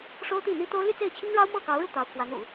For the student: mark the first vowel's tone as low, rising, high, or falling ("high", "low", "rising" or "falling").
high